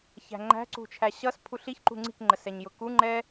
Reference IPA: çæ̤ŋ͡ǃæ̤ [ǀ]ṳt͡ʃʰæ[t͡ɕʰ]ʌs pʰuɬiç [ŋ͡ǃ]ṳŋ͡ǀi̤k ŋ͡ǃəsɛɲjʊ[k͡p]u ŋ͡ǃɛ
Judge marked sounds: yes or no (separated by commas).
yes, no, no, no